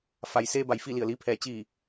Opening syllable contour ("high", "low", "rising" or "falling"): low